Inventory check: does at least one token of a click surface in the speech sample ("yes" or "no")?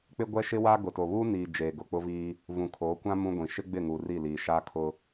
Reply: no